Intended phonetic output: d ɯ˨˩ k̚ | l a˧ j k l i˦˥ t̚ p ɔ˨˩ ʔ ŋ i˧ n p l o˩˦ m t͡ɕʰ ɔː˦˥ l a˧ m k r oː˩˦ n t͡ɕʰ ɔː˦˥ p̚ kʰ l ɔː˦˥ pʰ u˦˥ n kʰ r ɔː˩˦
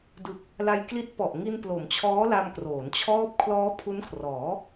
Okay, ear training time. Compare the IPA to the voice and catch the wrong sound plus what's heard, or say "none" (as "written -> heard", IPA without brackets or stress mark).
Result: none